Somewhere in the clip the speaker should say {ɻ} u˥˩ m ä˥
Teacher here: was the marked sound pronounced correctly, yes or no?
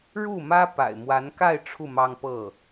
yes